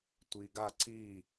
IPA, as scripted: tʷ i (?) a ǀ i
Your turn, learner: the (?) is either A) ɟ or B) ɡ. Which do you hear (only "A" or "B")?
B